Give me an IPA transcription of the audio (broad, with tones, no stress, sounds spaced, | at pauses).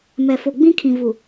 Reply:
m ɛ˨ f o˨ ɡ͡b ĩ˦ kʰ ĩ˨ v u˨